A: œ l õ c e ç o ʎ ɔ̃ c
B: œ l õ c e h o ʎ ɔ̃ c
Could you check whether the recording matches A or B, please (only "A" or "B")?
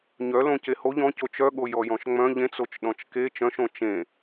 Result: B